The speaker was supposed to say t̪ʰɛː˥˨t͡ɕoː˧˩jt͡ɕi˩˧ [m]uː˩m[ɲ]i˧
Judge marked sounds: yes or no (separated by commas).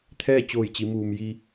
yes, no